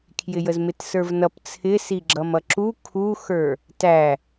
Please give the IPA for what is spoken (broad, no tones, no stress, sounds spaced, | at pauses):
kʰ j ɪ j ə z m ɪ t s ə˞ v n ʌ p t͡sʰ ɪ s i ɡ͡ǁ ʌ m ʌ ǁ u kʰ u x ə˞ | t æ